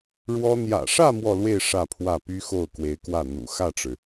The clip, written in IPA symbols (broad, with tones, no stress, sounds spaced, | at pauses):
ɻ w ɔ˥ n̪ j ä̰˨˩ ʂ ä˥˧ m w ɔ˥˧ l w e˥˧ ɪ̯ ʂ ä˥˧ pʰ w ä˥˩ p y˥ x o˥˩ ʊ̯ k w e˧˥ ɪ̯ k w ä˥˩ n̪ ṵ˨˩ x ä˥˩ ʈ͡ʂ ɻ̩˩